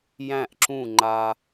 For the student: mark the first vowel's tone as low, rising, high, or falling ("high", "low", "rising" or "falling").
falling